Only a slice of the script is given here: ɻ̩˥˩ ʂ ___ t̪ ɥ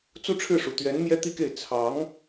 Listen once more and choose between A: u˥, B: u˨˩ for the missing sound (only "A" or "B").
B